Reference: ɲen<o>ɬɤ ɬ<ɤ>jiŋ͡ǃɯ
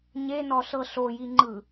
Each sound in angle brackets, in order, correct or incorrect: incorrect, incorrect

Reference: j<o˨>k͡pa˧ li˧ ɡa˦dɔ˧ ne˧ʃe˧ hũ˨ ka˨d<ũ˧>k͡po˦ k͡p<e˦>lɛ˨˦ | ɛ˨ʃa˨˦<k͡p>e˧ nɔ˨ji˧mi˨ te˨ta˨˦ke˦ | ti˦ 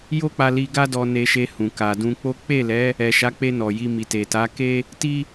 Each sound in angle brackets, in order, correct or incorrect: incorrect, correct, incorrect, correct

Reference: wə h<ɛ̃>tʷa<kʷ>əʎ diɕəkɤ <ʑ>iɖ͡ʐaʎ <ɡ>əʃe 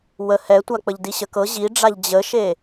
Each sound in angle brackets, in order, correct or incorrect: incorrect, incorrect, correct, incorrect

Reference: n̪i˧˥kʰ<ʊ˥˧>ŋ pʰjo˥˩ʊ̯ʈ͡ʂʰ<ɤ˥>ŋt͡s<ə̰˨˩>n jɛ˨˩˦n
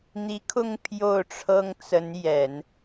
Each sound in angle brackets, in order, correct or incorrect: correct, correct, incorrect

